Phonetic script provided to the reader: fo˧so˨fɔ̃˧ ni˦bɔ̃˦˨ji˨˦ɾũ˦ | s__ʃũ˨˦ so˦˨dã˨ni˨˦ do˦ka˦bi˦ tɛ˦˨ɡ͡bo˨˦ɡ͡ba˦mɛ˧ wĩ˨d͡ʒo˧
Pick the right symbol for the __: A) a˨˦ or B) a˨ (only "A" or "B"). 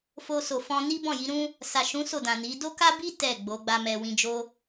B